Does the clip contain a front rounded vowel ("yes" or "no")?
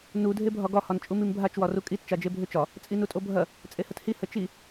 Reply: yes